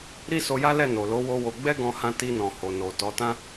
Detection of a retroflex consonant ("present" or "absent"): absent